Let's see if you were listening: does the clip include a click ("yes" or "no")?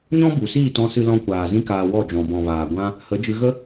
no